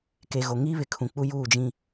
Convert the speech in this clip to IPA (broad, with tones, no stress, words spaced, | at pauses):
ke˨ ɣo˨ŋiː˦ βɪ˨kʰũ˨k͡pu˦ juː˦˨d͡ʒĩ˦